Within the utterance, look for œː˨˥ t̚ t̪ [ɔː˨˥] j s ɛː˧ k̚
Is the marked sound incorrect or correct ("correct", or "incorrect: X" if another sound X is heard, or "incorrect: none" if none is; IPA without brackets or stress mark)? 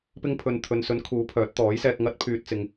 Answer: correct